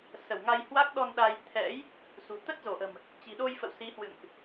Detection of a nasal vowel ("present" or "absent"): absent